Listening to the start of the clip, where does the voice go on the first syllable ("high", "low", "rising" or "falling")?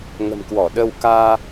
low